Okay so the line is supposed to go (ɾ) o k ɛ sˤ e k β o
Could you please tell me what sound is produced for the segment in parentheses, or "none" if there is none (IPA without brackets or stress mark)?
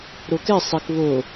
ɾ